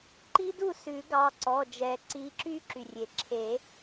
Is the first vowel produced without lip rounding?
yes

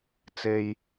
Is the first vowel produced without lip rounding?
yes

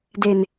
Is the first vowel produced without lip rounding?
yes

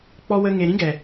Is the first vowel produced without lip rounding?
no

